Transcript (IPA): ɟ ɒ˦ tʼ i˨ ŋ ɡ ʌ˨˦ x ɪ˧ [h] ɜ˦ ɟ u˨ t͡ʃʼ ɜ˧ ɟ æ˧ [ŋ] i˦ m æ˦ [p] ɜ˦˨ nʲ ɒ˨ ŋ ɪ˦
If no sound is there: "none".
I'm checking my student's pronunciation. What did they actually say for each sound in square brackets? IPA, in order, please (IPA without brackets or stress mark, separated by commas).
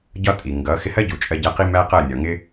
h, q, q